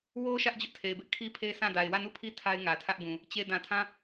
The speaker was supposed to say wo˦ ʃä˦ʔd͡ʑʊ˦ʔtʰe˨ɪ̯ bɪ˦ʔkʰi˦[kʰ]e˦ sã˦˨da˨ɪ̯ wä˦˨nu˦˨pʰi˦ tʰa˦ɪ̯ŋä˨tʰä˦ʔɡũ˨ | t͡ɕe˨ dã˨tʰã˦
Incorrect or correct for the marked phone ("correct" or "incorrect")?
incorrect